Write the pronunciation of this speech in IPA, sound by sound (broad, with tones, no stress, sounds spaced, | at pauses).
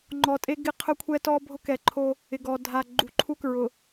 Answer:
ŋ͡ǃ ɔ˨ tʼ e˦ ɡ ɪ˦ qʰ ʊ˦ kʷʰ ɛ˦ t ɔ˦ bʱ ʊ˦ k ɛ˨ ǃʰ o˦ | ɪ˨ ɡ ɔ˨ dʱ a˨ ɡ͡ǃ u˨ ǃʰ u˦ k ɹ ʊ˨